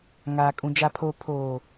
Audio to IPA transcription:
ŋ aː˨ kʼ ũ˨ d͡ʒ a˨ pʰ oː˨ pʰ oː˨

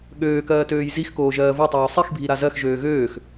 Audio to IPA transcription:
ɠ øː k ɜː t øː j z i x k oː ʒ ɜː v o tˤ oː sˤ i x bʱ i ɾ a z ɜ x ʒ øː ɣ øː x

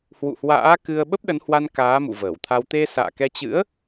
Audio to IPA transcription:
h w ṵ˧˨ h w a̰ː˧˥ k ɨ˧ ə̯ ɓ ə˦˥ p̚ ɗ ə˨˦ n h w a˧ n k aː˨˦ m ṵ˧˨ v əː˧˩ w t̪ʰ a˧ w t̪ e˧ s a̰ː˧˨ k ɛ˧ t͡ɕ ɨ̰˧˥ ə̯

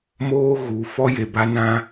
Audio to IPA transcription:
m oː˦ ɣ u˨˦ f ɔ˦ j e˨ b a˦ n ã˦

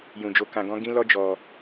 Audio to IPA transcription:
j ũ˧ d͡ʒ o˦ k ã˧ ɡ ɔ̃˦ ɡ ĩ˦ l ɔ˦ d͡ʒ ɔ˧

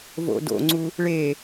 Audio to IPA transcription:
v o̰ d o̰ ŋ͡ǀ u | ɭ e

